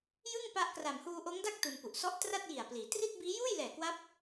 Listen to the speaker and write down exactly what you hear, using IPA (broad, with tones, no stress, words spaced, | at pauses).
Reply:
jɯ˥˩ŋpa˦˥ʔkra˨˩m huː˧ʔoː˦˥ŋda˥˩k̚ tu˧npu˨˩ʔ sɔ˦˥ʔtra˥˩t̚ji˨˩a̯pliː˩˦ tri˥˩t̚biː˦˥ juː˥˩jlɛː˨˩kwa˦˥p̚